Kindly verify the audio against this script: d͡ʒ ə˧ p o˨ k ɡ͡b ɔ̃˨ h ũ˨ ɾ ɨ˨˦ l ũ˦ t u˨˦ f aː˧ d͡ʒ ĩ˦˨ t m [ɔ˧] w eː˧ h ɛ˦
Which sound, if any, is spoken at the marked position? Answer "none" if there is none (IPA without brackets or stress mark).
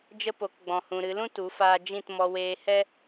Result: ɔ˧